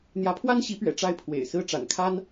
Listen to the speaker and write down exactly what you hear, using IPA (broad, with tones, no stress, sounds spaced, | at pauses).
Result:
n̪ j ä˧˥ pʰ w a˥ n ɕ i˧˥ p ɥ ɛ̰˨˩ ʈ͡ʂ a˥˩ ɪ̯ pʰ w ḛ˨˩ ɪ̯ s ɹ̩˥ ʈ͡ʂ a̰˨˩ n kʰ a˥ n